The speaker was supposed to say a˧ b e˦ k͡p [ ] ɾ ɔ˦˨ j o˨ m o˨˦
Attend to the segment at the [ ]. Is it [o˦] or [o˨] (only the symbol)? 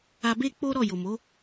o˦